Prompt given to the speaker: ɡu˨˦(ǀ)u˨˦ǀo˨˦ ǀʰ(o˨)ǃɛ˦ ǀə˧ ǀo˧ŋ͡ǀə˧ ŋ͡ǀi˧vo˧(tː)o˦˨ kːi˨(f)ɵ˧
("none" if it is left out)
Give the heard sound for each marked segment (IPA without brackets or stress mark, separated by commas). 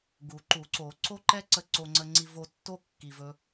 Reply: ǃ, o˦, tː, v